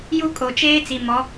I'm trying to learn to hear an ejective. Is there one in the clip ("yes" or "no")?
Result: yes